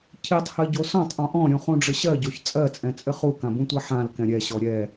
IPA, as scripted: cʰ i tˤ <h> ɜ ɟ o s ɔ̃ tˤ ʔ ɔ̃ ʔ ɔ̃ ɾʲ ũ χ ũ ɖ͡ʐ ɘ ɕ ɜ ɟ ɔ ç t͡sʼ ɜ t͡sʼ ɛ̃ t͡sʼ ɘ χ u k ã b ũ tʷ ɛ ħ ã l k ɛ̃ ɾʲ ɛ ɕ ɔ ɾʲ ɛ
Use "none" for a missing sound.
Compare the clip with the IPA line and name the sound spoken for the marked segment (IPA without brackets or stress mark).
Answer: h